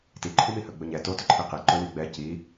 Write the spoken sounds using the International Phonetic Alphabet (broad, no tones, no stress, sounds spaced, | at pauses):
t i ǃʰ u m i h ɵ ɡ͡b ɵ ɲ ɛ t o t ɵ ǃʰ i q i ǃ ɵ w i ɡ͡b ɛ c i